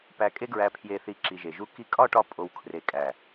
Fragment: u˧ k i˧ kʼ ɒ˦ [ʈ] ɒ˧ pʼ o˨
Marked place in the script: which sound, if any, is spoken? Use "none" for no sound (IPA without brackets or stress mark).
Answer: ʈ